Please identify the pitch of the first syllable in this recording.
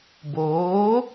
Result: rising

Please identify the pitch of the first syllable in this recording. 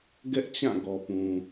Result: high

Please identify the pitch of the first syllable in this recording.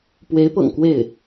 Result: rising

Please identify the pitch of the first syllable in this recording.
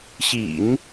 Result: low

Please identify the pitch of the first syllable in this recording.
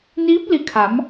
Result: rising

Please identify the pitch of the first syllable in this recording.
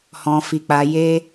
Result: low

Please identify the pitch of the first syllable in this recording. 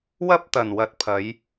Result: high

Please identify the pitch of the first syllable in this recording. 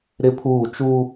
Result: high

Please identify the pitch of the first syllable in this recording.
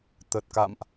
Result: low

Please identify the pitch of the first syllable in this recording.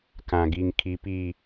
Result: low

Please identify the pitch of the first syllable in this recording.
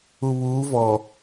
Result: low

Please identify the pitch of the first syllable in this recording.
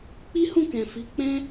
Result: high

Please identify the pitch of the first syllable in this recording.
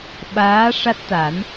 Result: rising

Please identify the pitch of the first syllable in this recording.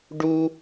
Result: high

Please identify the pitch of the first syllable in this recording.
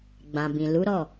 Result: low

